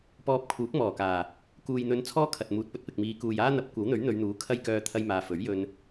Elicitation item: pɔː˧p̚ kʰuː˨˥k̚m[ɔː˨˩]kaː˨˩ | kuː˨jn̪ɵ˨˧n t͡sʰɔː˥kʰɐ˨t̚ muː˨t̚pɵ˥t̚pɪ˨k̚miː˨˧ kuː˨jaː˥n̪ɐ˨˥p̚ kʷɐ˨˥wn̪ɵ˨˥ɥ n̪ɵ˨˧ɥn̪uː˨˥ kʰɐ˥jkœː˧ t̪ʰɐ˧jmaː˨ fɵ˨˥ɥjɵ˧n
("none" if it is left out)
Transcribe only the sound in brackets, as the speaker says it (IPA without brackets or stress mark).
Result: ɔː˨˩